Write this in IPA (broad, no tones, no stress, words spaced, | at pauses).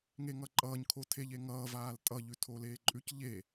ŋeŋʌǃʼʌːɲ kʰotʰeʎeŋʌː vaːltʼʌ ʎʉtʰoleːǃʼʉc ʎe